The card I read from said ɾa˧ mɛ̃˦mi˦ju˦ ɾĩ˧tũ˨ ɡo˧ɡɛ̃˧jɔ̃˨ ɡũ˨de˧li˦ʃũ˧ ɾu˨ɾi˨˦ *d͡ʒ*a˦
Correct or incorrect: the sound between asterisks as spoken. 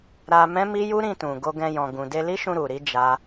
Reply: correct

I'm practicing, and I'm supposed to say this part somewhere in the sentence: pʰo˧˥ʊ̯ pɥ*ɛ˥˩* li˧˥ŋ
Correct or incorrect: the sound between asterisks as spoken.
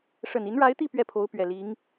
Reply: incorrect: ɛ˨˩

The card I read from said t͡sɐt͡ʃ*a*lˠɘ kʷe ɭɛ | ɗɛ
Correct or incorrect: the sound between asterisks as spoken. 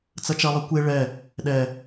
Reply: incorrect: ɐ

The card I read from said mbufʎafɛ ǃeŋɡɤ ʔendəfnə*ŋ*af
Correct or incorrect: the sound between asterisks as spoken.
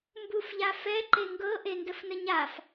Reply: incorrect: ɲ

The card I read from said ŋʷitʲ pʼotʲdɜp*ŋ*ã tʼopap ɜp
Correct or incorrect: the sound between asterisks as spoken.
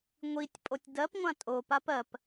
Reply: incorrect: ŋʷ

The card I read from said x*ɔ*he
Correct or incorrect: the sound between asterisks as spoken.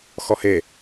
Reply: correct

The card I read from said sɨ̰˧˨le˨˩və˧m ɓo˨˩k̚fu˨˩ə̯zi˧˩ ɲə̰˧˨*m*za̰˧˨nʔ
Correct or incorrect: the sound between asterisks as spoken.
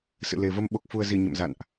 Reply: correct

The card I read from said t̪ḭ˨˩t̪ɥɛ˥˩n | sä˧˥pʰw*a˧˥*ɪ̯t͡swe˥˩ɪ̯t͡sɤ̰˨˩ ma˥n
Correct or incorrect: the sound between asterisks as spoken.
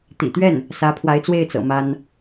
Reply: correct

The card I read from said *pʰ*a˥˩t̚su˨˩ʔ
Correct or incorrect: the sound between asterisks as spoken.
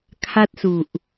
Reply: incorrect: kʰ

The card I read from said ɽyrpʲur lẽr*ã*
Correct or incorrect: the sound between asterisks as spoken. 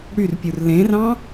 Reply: incorrect: ɑ̃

